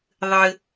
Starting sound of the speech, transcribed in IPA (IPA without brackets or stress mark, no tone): ðˤ